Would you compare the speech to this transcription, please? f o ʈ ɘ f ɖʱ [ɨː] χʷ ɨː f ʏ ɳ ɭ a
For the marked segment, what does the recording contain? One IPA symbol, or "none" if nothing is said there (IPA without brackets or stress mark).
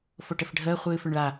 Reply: əː